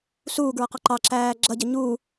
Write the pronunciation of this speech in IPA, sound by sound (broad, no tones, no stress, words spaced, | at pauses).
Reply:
suːɡɹʌqɑ ǃɑǁæː ɡ͡ǁʌɟə ɲu